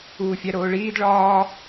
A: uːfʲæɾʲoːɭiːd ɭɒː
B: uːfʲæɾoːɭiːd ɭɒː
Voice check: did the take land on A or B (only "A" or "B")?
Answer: B